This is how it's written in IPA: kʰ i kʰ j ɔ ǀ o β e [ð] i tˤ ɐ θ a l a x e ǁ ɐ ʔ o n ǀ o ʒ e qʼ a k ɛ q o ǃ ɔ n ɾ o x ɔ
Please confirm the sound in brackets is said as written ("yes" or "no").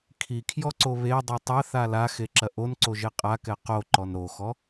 no